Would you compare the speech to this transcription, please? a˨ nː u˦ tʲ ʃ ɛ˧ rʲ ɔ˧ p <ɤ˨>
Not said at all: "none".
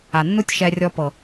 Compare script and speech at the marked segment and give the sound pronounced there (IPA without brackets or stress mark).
ɤ˨